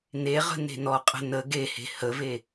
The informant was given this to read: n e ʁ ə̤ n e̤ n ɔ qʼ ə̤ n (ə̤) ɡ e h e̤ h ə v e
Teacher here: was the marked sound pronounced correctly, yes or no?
no